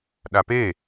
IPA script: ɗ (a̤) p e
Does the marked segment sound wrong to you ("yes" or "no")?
yes